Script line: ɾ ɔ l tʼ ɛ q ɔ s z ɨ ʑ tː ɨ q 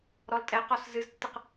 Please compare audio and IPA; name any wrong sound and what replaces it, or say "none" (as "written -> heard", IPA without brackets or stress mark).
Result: ʑ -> z